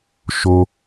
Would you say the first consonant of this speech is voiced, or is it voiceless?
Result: voiceless